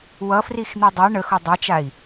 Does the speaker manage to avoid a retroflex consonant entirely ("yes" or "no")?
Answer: no